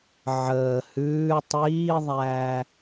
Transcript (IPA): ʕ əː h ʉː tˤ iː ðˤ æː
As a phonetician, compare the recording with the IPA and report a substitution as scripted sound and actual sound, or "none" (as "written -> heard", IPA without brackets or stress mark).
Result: none